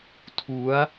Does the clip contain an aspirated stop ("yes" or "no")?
yes